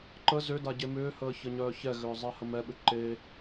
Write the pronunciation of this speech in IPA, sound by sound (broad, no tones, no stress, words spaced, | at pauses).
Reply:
ǃə zʏda ɟemʏːhəː çəɲœːçɛɣʏː zˤɛhəmɛɓʏ ǃe